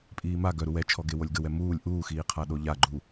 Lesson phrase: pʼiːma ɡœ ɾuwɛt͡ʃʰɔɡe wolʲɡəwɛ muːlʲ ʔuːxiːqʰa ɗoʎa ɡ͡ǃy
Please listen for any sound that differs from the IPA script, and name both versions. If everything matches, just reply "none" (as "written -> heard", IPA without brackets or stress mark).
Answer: y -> u